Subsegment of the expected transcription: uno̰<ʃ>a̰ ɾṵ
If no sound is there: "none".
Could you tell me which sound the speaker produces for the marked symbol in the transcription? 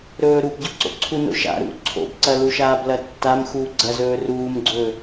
ʃ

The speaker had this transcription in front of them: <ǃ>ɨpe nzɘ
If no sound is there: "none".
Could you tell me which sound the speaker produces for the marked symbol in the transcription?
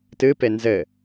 t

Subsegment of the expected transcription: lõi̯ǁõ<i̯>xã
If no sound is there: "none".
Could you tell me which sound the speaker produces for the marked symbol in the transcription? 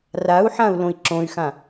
y̯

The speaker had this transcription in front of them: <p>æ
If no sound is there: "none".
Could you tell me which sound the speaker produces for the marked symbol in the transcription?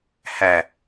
h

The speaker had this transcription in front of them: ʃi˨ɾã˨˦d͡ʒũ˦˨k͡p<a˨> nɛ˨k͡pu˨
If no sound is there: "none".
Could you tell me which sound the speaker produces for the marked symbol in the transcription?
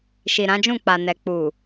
a˨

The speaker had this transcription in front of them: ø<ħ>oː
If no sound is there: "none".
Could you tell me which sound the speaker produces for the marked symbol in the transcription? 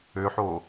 ħ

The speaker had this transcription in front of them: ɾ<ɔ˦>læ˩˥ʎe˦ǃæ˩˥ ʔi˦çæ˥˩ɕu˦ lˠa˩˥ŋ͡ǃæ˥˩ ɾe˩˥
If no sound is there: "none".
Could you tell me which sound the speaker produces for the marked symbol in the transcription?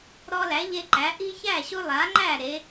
ɔ˦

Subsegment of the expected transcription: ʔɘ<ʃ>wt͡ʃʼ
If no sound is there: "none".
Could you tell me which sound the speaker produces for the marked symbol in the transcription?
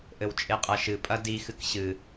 none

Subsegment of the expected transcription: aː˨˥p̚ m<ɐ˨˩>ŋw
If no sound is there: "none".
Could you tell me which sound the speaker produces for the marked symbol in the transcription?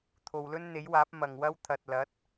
ɐ˨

